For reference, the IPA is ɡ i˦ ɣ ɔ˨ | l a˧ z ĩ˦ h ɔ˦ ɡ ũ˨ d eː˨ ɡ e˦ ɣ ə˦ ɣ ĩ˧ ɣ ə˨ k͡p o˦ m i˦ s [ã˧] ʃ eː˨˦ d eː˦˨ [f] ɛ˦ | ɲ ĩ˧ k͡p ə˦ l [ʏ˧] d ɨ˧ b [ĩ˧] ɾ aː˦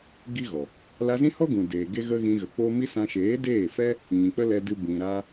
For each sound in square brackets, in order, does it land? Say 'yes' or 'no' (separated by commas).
yes, yes, no, yes